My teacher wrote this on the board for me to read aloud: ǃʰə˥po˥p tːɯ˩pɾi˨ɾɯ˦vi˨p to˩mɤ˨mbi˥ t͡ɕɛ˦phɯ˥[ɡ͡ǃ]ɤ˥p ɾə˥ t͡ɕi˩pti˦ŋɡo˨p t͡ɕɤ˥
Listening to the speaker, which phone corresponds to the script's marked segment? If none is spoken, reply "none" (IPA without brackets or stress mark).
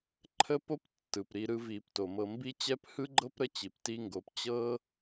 ɡ͡ǃ